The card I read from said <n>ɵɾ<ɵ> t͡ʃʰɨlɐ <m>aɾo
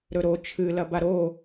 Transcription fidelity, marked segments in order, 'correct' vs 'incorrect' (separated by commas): incorrect, incorrect, incorrect